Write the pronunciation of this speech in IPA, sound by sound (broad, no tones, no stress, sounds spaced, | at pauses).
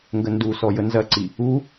ŋ ɡ ə n d u s ɔ j ə n z ɐ ǀ i | u